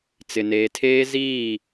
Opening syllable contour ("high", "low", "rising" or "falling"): low